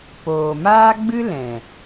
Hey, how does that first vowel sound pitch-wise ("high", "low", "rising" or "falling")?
low